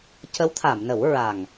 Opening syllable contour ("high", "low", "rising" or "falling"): rising